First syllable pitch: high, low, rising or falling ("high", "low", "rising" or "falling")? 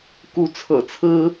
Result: rising